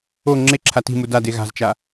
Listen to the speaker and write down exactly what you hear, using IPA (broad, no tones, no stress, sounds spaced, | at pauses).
o ŋ͡ǁ e ǁʰ a t i̤ m u d a d e ɣ a̤ z t͡ʃ a